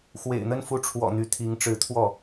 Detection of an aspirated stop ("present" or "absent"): present